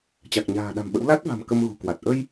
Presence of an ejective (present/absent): absent